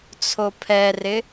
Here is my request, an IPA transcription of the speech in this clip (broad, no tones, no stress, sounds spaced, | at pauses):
t͡sʰ o pʰ ɛ r ɪ